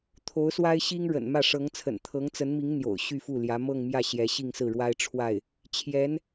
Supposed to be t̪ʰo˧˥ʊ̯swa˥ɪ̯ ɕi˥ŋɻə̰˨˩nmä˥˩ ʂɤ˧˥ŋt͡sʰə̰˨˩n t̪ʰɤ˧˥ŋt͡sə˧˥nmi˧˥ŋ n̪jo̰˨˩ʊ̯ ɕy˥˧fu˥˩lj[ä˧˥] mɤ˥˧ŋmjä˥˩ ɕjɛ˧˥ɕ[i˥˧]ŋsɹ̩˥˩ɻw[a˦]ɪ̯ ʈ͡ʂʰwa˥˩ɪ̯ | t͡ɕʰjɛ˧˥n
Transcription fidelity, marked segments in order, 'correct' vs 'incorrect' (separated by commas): correct, correct, incorrect